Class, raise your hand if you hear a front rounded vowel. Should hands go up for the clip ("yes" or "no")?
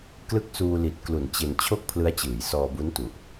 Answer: no